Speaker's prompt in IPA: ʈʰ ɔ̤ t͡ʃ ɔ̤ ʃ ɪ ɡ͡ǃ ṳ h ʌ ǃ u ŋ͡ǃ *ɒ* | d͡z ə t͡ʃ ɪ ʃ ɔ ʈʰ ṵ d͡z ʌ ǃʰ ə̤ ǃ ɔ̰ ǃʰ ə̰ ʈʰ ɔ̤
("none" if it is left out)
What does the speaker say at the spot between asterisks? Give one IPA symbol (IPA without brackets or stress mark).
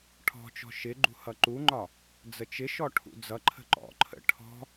ɒ